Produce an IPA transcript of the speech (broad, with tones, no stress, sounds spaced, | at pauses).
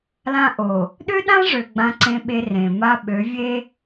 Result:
l ã˦ ʔ o˨ | ɗ ø˦ ɗ ã˦ ʐ ø˨ ɡ͡b ã˦ ǀ ẽ˦ ɓ e˦ r ẽ˨ m a˦ ɓ ø˨˦ vʲ e˦